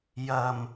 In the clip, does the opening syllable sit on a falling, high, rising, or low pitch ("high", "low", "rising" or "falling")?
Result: low